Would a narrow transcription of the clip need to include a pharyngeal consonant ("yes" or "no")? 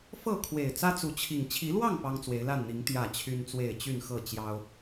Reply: no